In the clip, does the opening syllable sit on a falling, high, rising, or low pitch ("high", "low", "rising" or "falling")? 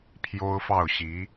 high